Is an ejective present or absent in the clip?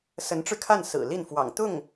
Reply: absent